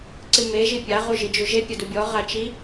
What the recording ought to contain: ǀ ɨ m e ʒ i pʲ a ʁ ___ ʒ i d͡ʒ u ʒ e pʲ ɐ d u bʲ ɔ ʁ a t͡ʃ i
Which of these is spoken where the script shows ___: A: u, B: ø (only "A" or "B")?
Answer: A